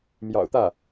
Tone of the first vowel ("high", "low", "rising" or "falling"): low